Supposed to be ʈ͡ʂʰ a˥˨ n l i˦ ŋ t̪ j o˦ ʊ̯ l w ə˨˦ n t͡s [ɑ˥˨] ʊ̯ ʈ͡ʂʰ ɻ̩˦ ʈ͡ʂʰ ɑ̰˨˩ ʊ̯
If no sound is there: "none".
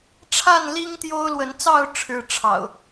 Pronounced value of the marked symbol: ɑ˥˨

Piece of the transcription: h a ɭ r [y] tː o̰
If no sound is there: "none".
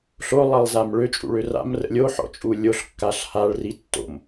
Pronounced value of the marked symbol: i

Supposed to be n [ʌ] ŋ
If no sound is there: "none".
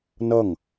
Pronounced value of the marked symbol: ʌ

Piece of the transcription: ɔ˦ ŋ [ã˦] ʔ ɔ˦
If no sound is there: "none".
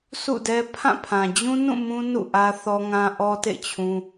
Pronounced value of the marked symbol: ã˦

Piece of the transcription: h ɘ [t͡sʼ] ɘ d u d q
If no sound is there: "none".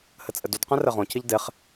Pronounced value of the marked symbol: t͡sʼ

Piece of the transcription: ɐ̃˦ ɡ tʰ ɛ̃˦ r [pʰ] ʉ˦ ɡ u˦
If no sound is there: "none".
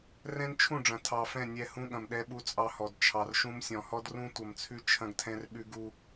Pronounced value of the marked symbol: ɓ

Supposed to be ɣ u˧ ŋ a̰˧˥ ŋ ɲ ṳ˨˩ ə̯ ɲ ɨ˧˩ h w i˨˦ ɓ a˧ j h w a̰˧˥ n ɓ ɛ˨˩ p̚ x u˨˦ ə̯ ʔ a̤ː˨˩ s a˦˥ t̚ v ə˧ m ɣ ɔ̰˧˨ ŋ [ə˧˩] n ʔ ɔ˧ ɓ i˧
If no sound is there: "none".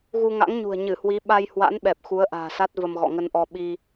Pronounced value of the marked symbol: ə˧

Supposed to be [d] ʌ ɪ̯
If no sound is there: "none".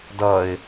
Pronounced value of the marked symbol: d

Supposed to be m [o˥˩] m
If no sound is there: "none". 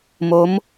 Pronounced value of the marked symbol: o˦˥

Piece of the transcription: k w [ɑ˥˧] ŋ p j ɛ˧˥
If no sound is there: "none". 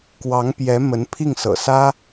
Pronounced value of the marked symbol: ɑ˧˥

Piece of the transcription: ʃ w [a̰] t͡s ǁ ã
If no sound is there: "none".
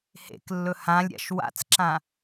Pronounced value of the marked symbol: a̰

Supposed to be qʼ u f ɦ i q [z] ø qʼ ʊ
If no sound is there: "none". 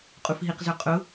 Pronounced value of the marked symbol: z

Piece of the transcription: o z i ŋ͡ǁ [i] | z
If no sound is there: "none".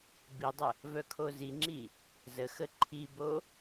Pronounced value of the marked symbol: i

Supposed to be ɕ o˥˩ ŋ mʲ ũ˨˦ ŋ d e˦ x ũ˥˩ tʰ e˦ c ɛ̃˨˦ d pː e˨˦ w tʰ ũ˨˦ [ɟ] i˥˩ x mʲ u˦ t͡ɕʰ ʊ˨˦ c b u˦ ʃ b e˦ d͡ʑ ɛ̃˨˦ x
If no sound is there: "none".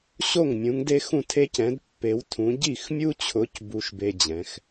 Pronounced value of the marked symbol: ɟ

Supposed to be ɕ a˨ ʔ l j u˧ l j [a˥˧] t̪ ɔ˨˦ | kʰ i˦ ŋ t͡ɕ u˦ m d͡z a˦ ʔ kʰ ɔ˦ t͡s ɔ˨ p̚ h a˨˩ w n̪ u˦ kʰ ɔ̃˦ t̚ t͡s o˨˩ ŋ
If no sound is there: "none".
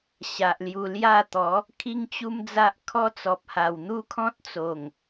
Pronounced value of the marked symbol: a˥˧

